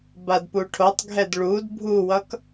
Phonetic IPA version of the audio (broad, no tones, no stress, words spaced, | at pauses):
badpuʈʰotˤɡʱɛd ɭud bʱuwʌk